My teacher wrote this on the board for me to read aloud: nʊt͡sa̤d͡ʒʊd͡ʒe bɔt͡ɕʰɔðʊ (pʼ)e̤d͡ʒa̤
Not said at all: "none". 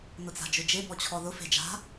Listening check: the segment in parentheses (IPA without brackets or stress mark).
f